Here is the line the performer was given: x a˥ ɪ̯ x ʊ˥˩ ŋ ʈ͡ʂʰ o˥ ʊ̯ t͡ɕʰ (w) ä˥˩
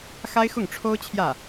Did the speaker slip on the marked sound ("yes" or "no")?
yes